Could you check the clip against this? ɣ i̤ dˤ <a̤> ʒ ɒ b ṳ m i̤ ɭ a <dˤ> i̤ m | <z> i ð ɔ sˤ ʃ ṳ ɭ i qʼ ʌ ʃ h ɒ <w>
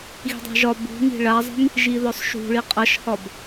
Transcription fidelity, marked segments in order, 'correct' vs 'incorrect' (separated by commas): correct, incorrect, incorrect, incorrect